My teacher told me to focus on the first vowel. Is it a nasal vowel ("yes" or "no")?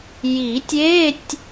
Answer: no